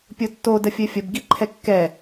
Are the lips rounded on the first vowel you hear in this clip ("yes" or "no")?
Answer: yes